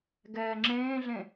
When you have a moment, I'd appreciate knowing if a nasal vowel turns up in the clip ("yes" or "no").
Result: yes